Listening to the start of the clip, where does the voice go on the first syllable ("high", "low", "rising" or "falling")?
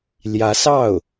rising